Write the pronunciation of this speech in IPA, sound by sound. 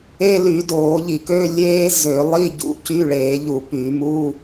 eː˧˥˧ l y˧˩˧ d oː˧˩˧ ʎ i˧˩˧ k ø˧˥˧ lʲ eː˦˥ z ø˧˩˧ lˠ i˧˥˧ ɟ ṵ˧˩˧ c y˧˥˧ ɭ eː˧˩˧ ʎ u˧˩˧ p y˧˩˧ m u˧˥˧

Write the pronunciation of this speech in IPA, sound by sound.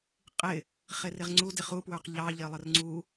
qʼ ɪ | χ ɪ r ɪ ʁ ŋ͡ǀ u d ɪ χ u p w ə˞ q ʎ ɑ ʎ ɪ lˠ ə r ŋ͡ǀ u

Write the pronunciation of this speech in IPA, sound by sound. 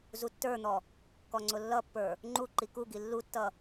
z u tː ə˞ n̪ ɔ | k ɔ ŋ͡ǀ ʊ lː ʌ pː ə˞ | ŋ͡ǃ u ǃ i k u ɡ i lː u tː ʌ

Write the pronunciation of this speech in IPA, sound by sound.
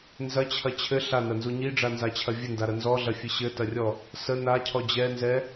n z ɐ t͡ɕʰ ɐ t͡ɕʰ ɘ ɬ a n ɐ n z u ɲ i ɖ͡ʐ a n z a t͡ɕʰ ɐ vʲ ɘ n d a ɾ ɐ n z ɔ ɮ ɐ fʲ ɘ ɕ ɘ t ɐ rʲ ɔ | s ə n a cʰ ɔ d͡ʑ ɛ n z ɛ

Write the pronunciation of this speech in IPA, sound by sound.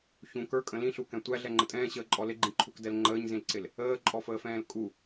ç ũ k ə˞ kʼ ə̃ l ĩ ɬ u k ɛ̃ tʷ æ ɮ ɛ ŋ͡ǃ ə tʼ ɛ̃ː ɕ əː ǃʼ ɔ l ɪ ɡ͡ǃ ĩ ǃʰ u k d ɛ l ŋ͡ǃ əː ɲ z ĩ l ǀ ɪ l | əː ǃʼ ɔ f əː f ɛ̃ː l kʼ u

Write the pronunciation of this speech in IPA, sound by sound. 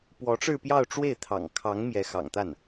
p w ɔ˧˥ ʈ͡ʂ ɻ̩˥˧ p j ɑ˥˧ ʊ̯ ʈ͡ʂ w e˥˩ ɪ̯ t̪ʰ ɑ̰˨˩ ŋ kʰ ɑ˧˥ ŋ m j ɛ˧˥ x ɑ̰˨˩ ŋ t̪ a˥˩ n

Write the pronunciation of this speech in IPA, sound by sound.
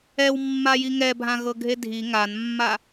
ɛ w mː a j i ŋ ɛ bʱ ã ɣ ɤ ɡʱ e dʱ i ŋ a n mː a

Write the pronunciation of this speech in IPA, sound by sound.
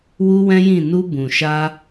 w u˦ w ɛ̃˦ j ĩ˦˨ n u˧ b ũ˨ ʃ a˧

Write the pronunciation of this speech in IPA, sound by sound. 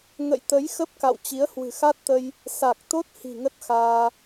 ŋ ə̰˧˨ j t̪ ə˨˦ j x ə˦˥ p̚ k a̰˧˨ w t͡ɕ i˨˦ ə̯ h w ɨ̤˨˩ x a˦˥ t̚ t̪ ə˧ j | s a˨˩ k̚ t̪ o˦˥ t̚ h i̤˨˩ ŋ ə˦˥ t̚ x aː˧

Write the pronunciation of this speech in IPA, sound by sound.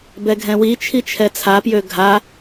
b ɛ ɡʱ ɛ̃ w i t͡ʃʰ i t͡ʃʰ ɛ t͡sʰ a p j ø ɡʱ a

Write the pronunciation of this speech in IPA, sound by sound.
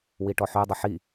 w i ʈ ɔ ħ ø dˤ ɐ ħ i

